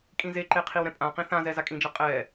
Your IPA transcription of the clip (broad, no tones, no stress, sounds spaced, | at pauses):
kʼ ĩ z e ǃ e qʰ i w ɾ ɛ̃ pʼ ã q ĩ θ ã z ɛ z a kʼ ĩ d͡ʒ a qʼ ɛ